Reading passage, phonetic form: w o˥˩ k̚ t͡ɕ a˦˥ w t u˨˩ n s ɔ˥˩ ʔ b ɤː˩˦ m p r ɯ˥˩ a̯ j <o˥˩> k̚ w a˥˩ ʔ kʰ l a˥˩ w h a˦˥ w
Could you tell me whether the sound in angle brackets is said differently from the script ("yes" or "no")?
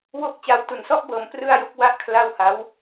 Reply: yes